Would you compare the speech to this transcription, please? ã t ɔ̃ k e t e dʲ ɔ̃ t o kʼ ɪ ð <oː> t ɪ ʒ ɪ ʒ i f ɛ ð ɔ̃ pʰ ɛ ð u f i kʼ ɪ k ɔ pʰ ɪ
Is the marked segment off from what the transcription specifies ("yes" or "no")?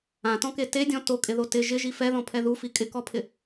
yes